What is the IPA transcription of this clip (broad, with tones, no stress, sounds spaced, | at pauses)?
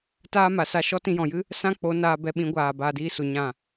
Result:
t aː˦ m a˨ s a˧ ʃ ɔ˦ t ĩ˧ j ɔ̃˨ j ɨ˦ | s ã˦ k͡p o˨˦ n aː˧ b ɛ˧ ɓ ĩ˨˦ ɡʷ aː˨ b aː˧ d iː˦ s u˨ ɲ ã˦˨